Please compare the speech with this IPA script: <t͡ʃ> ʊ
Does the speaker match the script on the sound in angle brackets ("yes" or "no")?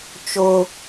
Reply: yes